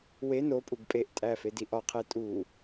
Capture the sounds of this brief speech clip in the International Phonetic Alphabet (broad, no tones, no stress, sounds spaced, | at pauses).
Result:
w e n o pʼ u ɡ pʼ e ʔ tʼ æ f e d i ʔ ɒ qʰ e tʼ u